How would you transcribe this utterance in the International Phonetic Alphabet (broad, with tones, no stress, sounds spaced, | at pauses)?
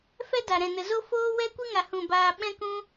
f ɛ˦ d a˨ ɾ ɛ̃˨ n ə˨ z o˦ f oː˦ w ɛ˦ kʷ ɨ˦ ŋ a˨ h ũ˨ b aː˧ ɓ ɛ̃˦ k ũ˦